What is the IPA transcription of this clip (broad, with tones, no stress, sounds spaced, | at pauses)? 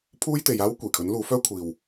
pʰ uː˥ j t̪ e˨˧ j aː˥ w kʷ iː˨˩ kʰ ɵ˨˥ n l uː˨˥ f œː˥ kʷʰ iː˨ w